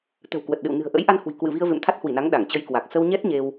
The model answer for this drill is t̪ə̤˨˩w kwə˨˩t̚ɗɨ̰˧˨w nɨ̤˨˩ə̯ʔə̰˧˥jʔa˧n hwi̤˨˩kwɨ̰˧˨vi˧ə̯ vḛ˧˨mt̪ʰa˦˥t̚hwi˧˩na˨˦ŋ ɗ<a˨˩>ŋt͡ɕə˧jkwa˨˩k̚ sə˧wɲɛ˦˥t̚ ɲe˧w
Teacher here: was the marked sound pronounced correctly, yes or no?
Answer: no